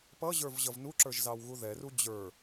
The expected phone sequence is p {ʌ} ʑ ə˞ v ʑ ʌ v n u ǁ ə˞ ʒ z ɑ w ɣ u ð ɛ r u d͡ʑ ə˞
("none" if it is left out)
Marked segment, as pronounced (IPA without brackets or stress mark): ʌ